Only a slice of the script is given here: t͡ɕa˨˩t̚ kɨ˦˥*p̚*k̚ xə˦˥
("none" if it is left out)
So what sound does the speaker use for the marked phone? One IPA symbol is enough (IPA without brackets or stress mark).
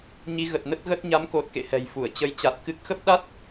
none